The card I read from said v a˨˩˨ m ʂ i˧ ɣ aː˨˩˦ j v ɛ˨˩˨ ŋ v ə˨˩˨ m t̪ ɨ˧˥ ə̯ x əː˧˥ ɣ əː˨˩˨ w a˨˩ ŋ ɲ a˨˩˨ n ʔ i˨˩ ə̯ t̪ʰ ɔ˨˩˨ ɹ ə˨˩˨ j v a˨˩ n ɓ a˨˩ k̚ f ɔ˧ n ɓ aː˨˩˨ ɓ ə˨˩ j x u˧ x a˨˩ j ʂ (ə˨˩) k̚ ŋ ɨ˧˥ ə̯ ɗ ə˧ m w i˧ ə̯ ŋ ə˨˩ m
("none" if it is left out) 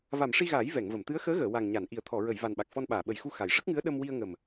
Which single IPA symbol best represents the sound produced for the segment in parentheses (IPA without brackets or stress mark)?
ə˦˥